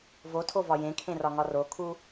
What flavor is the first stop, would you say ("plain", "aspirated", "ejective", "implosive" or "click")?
aspirated